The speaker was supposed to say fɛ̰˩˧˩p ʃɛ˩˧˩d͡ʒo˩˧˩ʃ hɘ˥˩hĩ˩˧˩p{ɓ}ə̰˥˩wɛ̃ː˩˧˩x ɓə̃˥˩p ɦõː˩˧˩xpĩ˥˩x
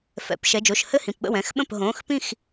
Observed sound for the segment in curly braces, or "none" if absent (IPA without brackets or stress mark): ɓ